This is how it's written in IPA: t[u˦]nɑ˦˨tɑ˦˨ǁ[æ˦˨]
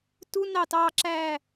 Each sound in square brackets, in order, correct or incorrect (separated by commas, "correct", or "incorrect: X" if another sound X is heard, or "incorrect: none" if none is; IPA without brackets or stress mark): correct, correct